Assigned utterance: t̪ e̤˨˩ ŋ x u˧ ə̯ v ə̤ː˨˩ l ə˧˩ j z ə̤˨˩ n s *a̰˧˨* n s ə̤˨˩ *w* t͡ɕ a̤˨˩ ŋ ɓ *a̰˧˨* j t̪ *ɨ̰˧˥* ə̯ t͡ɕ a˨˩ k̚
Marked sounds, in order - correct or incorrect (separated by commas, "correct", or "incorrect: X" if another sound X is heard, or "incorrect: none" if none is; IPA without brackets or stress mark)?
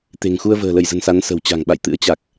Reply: incorrect: a˨˦, correct, correct, correct